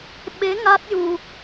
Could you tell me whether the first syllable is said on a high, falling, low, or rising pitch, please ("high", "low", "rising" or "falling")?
rising